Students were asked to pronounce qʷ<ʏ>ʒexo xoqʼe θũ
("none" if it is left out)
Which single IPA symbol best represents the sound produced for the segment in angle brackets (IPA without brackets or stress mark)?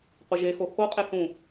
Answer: ɪ